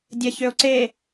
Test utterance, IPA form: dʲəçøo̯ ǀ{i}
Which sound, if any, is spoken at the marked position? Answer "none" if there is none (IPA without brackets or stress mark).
e